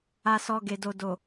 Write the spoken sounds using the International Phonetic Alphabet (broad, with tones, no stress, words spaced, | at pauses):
a˨sɔ˨ ɡe˨do˨do˨